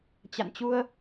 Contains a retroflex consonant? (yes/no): no